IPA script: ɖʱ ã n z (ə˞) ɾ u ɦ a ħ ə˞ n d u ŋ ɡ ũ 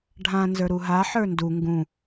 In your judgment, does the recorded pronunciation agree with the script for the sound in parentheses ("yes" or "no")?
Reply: yes